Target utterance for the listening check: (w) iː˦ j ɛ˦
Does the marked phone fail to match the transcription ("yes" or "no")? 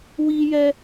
no